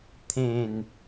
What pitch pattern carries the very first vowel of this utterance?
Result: low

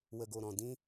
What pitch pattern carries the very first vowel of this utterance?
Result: low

